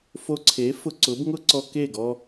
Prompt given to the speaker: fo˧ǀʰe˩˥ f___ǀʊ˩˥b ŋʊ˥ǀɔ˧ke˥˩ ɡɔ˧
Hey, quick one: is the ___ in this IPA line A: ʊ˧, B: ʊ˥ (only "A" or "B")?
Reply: A